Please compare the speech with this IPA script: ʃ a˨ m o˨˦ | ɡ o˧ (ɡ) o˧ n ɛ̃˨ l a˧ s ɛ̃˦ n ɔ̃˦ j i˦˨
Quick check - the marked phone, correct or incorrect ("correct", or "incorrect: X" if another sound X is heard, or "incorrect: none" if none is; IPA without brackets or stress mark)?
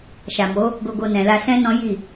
correct